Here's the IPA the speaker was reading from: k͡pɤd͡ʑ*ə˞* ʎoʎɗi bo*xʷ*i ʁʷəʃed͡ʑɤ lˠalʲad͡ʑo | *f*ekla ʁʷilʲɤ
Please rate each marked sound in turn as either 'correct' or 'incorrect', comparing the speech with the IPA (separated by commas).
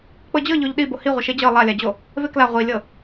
incorrect, incorrect, incorrect